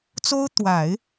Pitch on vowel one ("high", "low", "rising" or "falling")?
high